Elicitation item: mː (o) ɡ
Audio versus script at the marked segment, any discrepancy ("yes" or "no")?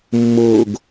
no